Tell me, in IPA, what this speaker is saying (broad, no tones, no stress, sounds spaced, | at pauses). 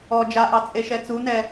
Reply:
ɔ d͡ʒ a ʔ ɑ t͡sʼ e ʃ ɛ t͡s u n ɛ